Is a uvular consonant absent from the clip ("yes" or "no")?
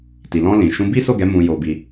yes